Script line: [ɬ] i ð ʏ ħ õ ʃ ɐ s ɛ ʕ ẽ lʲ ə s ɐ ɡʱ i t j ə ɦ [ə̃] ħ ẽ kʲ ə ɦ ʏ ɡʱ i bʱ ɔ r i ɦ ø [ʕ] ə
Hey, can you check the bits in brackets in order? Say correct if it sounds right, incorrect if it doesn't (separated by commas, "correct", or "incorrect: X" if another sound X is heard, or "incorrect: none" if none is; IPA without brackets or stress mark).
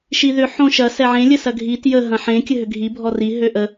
incorrect: ʃ, incorrect: ɐ̃, incorrect: ʔ